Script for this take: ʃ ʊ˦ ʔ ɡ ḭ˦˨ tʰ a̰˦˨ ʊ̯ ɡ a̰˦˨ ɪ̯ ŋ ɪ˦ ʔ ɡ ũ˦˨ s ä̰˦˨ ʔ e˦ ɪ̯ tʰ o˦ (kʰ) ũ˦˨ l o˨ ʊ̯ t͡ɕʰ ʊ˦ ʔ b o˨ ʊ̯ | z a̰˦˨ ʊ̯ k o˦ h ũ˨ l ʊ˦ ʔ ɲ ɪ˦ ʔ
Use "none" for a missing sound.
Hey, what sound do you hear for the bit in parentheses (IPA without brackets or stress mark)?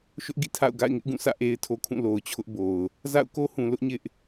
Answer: kʰ